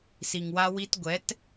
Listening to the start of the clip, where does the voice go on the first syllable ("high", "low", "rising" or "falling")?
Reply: low